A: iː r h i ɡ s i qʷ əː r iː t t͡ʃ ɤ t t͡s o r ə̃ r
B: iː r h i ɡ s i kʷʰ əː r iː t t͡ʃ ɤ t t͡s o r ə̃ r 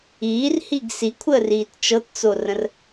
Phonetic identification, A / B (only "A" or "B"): B